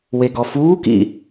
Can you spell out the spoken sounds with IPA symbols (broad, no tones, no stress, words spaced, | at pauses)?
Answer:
weɡɔfuːkḭ